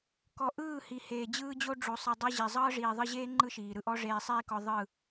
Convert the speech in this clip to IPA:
kɔ˨ ʔɯː˦˨hi˨ heː˨d͡ʑɯː˦d͡ʑo˦ ɖ͡ʐo˨sˤɯ˨dˤɤ˧ ʑi˨ zˤɤː˦ʐiː˨ðˤɯ˧ʑeː˦ ŋ͡ǃɯ˦ʃiː˨ɾɯ˦ʔɔ˦ ʐeː˧sˤiː˦kɔ˧ ðˤɯ˦˨

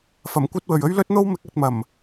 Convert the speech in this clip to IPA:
fɐ˨˩mkʷɐ˥t̚wɵ˨ɥ ɵ˥ɥlɵ˥t̚n̪o˥wmɪ˨˥k̚ ɐ˧t̚mɐ˨˩m

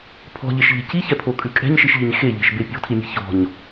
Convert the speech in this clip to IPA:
pʰɔ̤ʎeʃʎe̤ ciçɛpʰokʼʉ kʼɛ̤ɲʃiʃʎiɲ xeʎe̤ʃbe pʲɔ̤tʰimʲɛ̤ çɔ̤ɲ

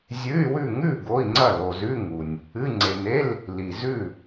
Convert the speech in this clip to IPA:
zʲʉ˧˥˧y̯wʉ˥˨ ŋʉ˥˨ ɡo˧˥˧i̯ŋ͡ǀɐ˥˨ lo˨zʉ˧˥˧ ŋu˨nʲ | ɨ˧˥˧ ŋ͡ǀe˨ne˧˥˧l | li˨zʉ˥˨

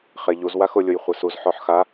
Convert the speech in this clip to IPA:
χeʎuzwa xʊ lʲʊjχʷɛsuz ħɔħxa

